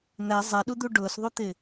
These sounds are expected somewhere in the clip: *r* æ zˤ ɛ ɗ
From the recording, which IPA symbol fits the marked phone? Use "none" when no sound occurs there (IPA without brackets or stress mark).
n̪